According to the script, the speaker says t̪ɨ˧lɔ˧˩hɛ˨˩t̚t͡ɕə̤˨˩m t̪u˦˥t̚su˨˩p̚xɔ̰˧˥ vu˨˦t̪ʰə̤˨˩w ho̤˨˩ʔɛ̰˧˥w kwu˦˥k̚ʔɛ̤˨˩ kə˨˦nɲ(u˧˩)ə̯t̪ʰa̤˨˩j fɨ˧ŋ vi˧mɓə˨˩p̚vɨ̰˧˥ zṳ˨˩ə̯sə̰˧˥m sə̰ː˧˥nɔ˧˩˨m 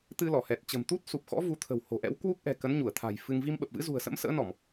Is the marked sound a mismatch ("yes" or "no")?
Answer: no